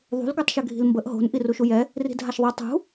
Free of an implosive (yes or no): yes